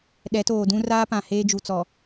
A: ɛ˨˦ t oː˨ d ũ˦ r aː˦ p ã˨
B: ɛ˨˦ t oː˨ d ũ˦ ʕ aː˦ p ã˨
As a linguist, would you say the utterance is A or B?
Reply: A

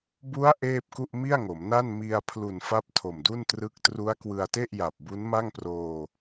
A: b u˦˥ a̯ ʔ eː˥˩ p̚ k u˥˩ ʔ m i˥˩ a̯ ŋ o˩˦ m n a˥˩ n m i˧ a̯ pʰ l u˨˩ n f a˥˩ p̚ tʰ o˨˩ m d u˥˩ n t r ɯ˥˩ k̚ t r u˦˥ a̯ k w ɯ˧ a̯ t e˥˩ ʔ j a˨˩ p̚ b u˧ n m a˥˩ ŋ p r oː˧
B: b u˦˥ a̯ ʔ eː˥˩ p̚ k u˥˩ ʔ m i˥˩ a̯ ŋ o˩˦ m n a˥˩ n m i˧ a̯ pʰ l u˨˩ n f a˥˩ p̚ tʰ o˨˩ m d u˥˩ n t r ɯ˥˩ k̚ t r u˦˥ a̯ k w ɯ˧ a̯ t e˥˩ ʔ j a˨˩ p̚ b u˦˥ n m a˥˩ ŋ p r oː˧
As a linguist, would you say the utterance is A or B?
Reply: B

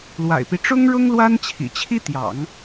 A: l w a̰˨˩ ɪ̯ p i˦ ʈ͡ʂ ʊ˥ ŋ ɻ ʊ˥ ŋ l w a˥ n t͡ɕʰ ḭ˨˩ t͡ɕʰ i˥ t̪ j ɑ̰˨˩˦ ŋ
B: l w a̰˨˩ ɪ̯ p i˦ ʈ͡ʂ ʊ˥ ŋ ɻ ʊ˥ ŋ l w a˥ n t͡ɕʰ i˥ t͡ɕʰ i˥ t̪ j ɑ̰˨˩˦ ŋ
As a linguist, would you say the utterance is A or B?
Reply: A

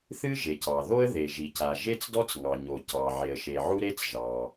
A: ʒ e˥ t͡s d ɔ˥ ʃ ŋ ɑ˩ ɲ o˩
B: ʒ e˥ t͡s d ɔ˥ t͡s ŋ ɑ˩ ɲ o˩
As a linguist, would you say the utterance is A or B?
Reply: B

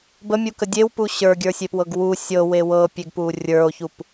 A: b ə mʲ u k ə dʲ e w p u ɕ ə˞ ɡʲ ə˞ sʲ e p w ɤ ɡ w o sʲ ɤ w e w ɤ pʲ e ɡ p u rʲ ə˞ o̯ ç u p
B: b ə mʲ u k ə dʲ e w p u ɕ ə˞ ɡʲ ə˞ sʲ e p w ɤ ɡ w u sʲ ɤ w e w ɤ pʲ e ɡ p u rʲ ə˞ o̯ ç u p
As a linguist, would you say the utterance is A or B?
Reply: B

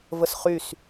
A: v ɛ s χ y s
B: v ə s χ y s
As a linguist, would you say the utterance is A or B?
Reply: B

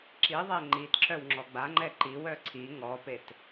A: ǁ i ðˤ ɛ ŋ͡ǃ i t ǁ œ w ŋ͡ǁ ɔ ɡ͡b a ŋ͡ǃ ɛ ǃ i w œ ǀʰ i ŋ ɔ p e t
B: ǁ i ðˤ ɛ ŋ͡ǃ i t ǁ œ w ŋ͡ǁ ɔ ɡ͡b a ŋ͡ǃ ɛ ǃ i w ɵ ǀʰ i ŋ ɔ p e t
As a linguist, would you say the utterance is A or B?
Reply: A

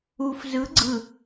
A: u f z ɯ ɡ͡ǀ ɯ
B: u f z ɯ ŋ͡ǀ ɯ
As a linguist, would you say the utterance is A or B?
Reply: A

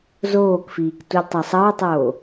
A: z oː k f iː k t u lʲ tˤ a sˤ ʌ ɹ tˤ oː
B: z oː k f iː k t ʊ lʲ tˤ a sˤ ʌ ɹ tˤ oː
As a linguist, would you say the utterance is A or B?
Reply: A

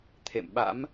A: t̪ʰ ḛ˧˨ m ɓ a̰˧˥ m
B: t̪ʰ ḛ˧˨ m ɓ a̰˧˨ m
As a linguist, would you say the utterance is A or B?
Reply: A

